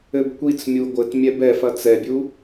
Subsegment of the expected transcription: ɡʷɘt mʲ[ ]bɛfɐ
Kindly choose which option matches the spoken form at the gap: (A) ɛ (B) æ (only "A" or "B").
A